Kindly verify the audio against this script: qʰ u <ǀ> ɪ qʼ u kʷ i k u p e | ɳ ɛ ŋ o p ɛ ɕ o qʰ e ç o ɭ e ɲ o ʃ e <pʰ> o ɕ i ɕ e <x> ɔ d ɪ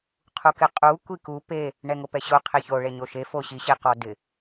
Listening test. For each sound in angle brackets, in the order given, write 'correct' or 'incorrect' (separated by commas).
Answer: incorrect, incorrect, incorrect